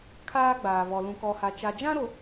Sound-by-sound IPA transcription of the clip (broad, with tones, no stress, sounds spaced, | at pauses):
kʰ aː˦ ɡ͡b aː˨ β ɔ˨ l ũ˨ k ɔ˨ h a˨ t͡ʃ a˨ d͡ʒ ã˦ ɾ o˨